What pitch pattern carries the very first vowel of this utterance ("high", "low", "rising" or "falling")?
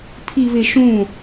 low